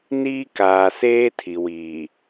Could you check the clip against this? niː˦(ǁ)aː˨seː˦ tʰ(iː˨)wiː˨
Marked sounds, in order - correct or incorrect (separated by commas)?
incorrect, incorrect